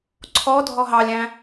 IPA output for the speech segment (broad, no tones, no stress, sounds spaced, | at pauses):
ǀʰ ɔ dʱ ɔ ɦ ɑ lʲ æ̃